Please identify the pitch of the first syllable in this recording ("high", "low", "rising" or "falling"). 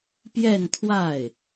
falling